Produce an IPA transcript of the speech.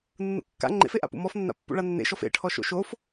nːṵkːa̰ ŋ͡ǃḛfeʔa̰pṵ mɔfnːa̰ pːṵɭanːḛʃɔf ḛʈʰɔʃo̰ ʃof

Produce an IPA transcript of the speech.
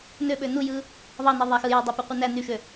nøɓø nujɯ | ðˤɑne ðˤæxɯjɑ dˤøpøqʷɯnæ nyʃø

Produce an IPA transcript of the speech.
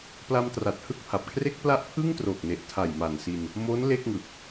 pla˧mtra˨˩t̚ hɯ˥˩k̚pʰa˨˩p̚kʰre˥˩k̚ pla˥˩ʔ pʰɯ˥˩ŋtroː˨˩k̚ne˨˩ʔ tʰa˨˩jma˨˩nsi˧n | mo˦˥n le˥˩k̚ŋɯ˨˩k̚

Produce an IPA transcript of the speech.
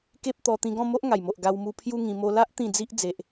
ke˦p̚t̪ɔ˧ t̪ĩ˧ɡɔ̃˥˧mo˦ʔ ŋa˨˩jmo˨ʔ ɡa˧wmu˧ pʰju˦ŋĩ˧ mo˧la˦ʔ t̪ĩ˥˧d͡zi˦ʔ d͡ze˨ʔ

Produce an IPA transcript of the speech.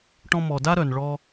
ʈɔ̃˧mɔ˨ da˦ɾœ˨nɭɔ˧

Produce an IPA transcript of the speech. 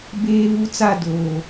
beː˦βu˦t͡sa˦˨ doː˨

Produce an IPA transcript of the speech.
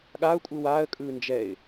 ɠaʊ̯kʷʼɯ waːə̯kʼɯː nd͡ʒɛɪ̯

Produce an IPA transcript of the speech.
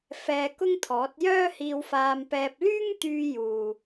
fɛː˧kʊ˥ŋt̪ʰɔː˨˥t̚ jœː˥hiː˧wfaː˧mpɛː˧p̚ lyː˥ŋt̪yː˧juː˨

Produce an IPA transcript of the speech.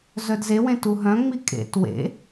zœdzewẽ tuɦœ̃ŋ͡mi kʼḛt wḛ

